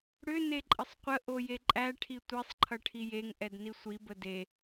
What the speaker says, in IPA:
ɽ ʏ n e ǃʼ ə sˤ qʷ ə ʔ o j e ǃʼ æ ʈʰ i tʷ e sˤ ǃʰ ʌ ʈʰ i j e ŋ ʔ ɛ d n i sʷ i b ə d e

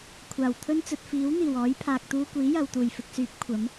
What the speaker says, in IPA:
kʷʰ aː˨˩ w t̪ʰ ɵ˥ n t͡s ɵ˧ t̚ f iː˨˥ w n̪ iː˨˩ w ɔː˨˥ j pʰ aː˨ k̚ t̪ uː˧ kʷ iː˨˥ j ɐ˨ w t̪ uː˨˩ j f ɪ˨ k̚ s yː˨˥ p̚ kʷʰ ɐ˨˥ m

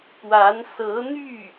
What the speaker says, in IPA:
p w a˧˥ n s ɤ˧˥ n̪ y˥˩

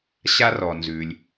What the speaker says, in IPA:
ɕ a˥ r ɔ˩ n z ʉ˩ lʲ

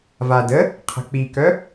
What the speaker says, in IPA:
v a d ə | qʰ ə̤ k͡p i k œ

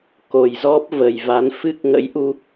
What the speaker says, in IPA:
k o˨˩ j z ɔ˦˥ p̚ v ə˨˩ j v a˨˦ n f ɨ˦˥ k̚ ŋ ə̰˧˥ j ʔ u˧

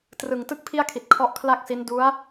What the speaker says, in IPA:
t r ɯ˨˩ ŋ t ɯ˥˩ k̚ pʰ i˥˩ a̯ kʰ i˨˩ t̚ kʰ ɔ˦˥ ʔ kʰ l a˥˩ k̚ s i˦˥ n d u˦˥ a̯

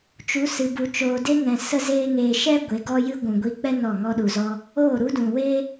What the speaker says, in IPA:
t͡ʃ u˨˦ s ɨ˨ b u˨ t͡ʃ oː˨ d e˦ ŋ ɛ̃˨ s ə˦ z eː˦ ŋ eː˧ ʃ ɛ˦ ɡʷ e˨˦ ɡ ɔ˦ j ɨ˦ ɡʷ ũ˨ ɡʷ i˧ k͡p ɛ˦ n ɔ˦˨ ŋ ɔ˧ ɗ u˨ z ɔ˧ | oː˦˨ ɾ u˦ d ũ˨ w e˦

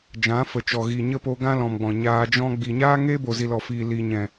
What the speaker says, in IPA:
d͡ʒ ã˨˦ f ə˨ t͡ʃ ɔ˨ ɣ i˨ ɲ ə˦ p o˧ ɡ ã˦ l ɔ̃˨ m ɡ͡b ɔ̃˨ ɲ aː˧ d͡ʒ ɔ̃˦ ɡ͡b i˨ ɲ aː˦ ŋ e˦ b o˨ z i˨ l ɔ˨ f iː˨ l i˨ ɲ ɛ̃˨

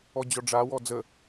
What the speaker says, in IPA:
ɔ d͡ʑ ɔ ɖ͡ʐ a w ɔ d͡z ə

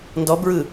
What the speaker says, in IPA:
n d ɔ b ɹ ɯ

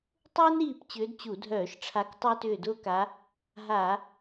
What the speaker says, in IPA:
tˤ ʊː˥ n ɾ iː˦˨ p t͡ɕ ʏː˧˥ d t͡ɕ u˧˩˧ dʱ œː˧˩˧ ʃ ʈ͡ʂʰ a˧˥ k tˤ ʏː˥ t ʏː˦˨ d ʊː˥ k a˧˥ | ɦ a˧˩˧

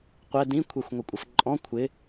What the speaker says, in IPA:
qʷ ɛ d ĩ kʷʰ ɛ xʷ ŋʷ ɪ kʷʼ ə f ǃʼ ɔ̃ kʷʰ ɪ

